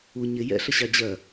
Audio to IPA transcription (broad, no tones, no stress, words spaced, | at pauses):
u ɲɪ jɛ̰ɬə ɕɑd͡ʑɜ